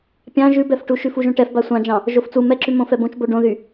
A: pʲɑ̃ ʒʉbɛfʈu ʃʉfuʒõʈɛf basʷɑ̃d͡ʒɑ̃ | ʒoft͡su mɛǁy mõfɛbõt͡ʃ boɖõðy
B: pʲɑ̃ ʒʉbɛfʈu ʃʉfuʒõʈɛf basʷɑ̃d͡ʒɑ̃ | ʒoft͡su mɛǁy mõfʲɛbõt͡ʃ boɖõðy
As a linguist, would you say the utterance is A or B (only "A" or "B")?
A